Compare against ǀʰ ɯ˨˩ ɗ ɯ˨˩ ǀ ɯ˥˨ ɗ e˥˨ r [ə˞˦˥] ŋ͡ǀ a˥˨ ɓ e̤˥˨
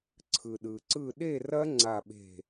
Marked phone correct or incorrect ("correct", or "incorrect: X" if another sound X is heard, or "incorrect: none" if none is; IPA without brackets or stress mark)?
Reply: incorrect: ɐ˦˥